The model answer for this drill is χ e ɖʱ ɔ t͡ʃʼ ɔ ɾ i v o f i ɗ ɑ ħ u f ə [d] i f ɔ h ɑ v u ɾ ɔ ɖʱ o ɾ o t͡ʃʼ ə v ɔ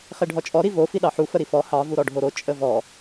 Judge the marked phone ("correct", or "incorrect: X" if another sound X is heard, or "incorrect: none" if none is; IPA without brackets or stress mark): incorrect: ɾ